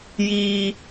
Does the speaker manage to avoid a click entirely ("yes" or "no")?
yes